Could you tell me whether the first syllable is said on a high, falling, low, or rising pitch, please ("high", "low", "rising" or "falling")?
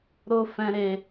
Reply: high